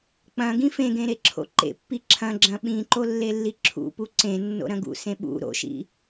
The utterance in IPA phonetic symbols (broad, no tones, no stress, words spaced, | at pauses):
k͡pɐ̃ ɡĩfẽɡẽ ɾeǁʰo̰ǃḛpːi ǁʰɐ̃ ɡ͡ǁɐ̃ɓĩǃo lːelːiǁʰṵpu ǀẽnːo̰ ɾɐ̃ɡṵsẽ ɓṵ ɾo̰ʃḭ